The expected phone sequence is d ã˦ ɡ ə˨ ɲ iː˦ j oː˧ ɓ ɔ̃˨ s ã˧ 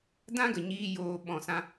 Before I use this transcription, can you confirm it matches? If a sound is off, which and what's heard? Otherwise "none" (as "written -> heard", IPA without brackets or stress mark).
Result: none